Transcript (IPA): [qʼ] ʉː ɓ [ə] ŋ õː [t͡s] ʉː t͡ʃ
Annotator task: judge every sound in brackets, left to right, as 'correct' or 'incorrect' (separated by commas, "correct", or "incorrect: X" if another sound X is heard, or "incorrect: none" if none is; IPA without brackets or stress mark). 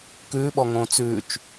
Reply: incorrect: k, incorrect: ɔ, correct